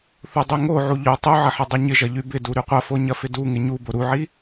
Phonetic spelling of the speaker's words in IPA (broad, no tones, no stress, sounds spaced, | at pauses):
θ u dˤ y ŋ o ʕ u ʎ o tˤ u ʕ ɐ ħ ɐ dˤ i ɲ ɪ ʒ ɐ ʎ y b ɪ d u ɾ y qʷ ɐ f o ɲ ɐ f ɪ d u ŋ ɪ ɲ u b o ɾ u ʕ i